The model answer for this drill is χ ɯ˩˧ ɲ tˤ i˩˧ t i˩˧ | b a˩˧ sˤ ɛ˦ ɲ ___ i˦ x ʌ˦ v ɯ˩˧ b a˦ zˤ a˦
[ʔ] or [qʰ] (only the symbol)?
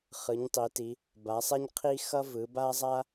qʰ